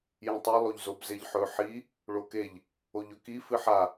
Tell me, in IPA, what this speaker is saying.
j ĩ tˤ i lˠ o ʎ z o b z e ʎ ħ ɵ ħ i | ɭ o k e ʎ | o ʎ ɵ k i f ɨ ħ a

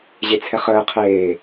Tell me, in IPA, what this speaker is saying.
ʑ e t͡sʰ ɛ χ əː qʰ eː

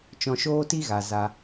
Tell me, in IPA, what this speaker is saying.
t͡ʃ ɔ̃˧ ʃ oː˦ t i˦ ɣ a˨ z a˧

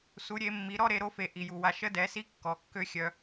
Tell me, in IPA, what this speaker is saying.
s u˩˧ ɾʲ e˩˧ mː i˩˧ ɾ ɔ˥ ɾ e˩˧ ɾ o˧˥ f e˩˧ ʔ i˩ j u˩ w a˧ ʃ ə˧˥ d ɛ˩˧ s i˧˥ kː ɔ˩˧ kː ø˥ xʲ œ˧

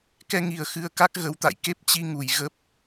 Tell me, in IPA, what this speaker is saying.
k ɛ˧ ŋ i˨˩ ə̯ x ɨ˧ ə̯ k a˦˥ k̚ ɣ ə˨˦ w t̪ a̰˧˨ j k e˦˥ p̚ t͡ɕ i˧ ŋ u˨˩ j ɣ ə˦˥ p̚

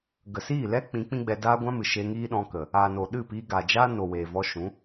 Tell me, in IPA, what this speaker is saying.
ɡ ə˨ s iː˦˨ l ɛ˦ k͡p ĩ˨˦ k͡p ĩ˦ ɡ͡b ɛ˧ d aː˦ ɡʷ ã˦ m ɨ˨ ʃ e˧ ŋ iː˦ ɗ ɔ̃˧ k ə˨ | aː˨ n o˨ ɗ ɨ˦˨ p iː˧ ɡ a˨ d͡ʒ aː˦ n o˨ w eː˨ v ɔ˧ ʃ ũ˨˦

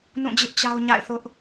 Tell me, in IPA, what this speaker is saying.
n ũ˦˨ d͡ʑ ɪ˦ ʔ t͡ɕ a˦ ʊ̯ ɲ a̰˦˨ ɪ̯ θ ʊ˦ ʔ

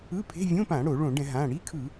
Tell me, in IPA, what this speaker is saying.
ɯ˧˥˧ pʰ e̤˧˥˧ vʲ õ˧˥˧ p ã˧˩˧ ɽ o˧˩˧ ɭ õ˧˩˧ ɖ ɛ̃˧˩˧ ɦ ã˩˧˩ ɽ i˧˥˧ kʰ ɯ˧˩˧

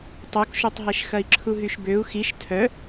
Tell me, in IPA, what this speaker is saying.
tˤ o k ʃ o tˤ ɦ ɛ ʃ x ɐ i̯ ǁʰ u ɦ y ʃ b ø u̯ x i ʃ tʰ œ

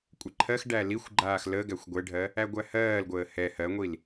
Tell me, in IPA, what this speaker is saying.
kʷʼ ɛ ǃʰ ɜ x ɖ æ l i xʷ ɡ͡ǃ aː x l ə ɡ æ xʷ ɡʷ ɛ ɖʱ ɜ | æ ɡʷ æ h ɜː l ɡʷ əː h ɛ h ɜ ŋʷ i l

